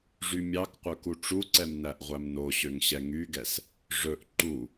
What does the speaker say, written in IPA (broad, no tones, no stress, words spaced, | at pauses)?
ʐymʲɑkqʷœ kuʈ͡ʂuǀɛm næʔʁʷæmnoɕøŋ ɕɛŋyɡɛs | ʐɵʔ ǃu